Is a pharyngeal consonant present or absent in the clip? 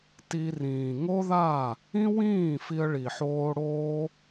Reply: present